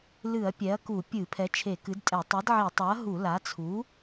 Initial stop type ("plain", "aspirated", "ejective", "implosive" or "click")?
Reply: plain